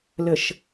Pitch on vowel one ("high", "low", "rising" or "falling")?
low